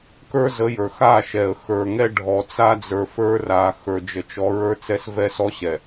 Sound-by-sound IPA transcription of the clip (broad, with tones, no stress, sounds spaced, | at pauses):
k ə˞˦ z ə˨˦ j ə˞˨ x a˦˨ ʃ ɛ˨ ə̯ x ə˞˨ ŋ ɛ˦ ɖʱ ɔ˨ t͡s a˦ d͡z ə˞˨ f ə˞˦ r a˨˦ x ə˞˨ d͡ʒ ə˨ t͡ʃ ɔ˨˦ ɹ ə˞˦ t͡s ɛ˦ s v ɛ˦ s ɔ˦ ɕ ɛ˨